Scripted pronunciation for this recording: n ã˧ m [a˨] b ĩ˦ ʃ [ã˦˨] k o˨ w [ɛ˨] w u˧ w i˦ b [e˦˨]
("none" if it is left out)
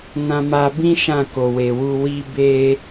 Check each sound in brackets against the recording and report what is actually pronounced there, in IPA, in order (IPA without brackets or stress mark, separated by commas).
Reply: a˧, ã˦˨, e˨, e˧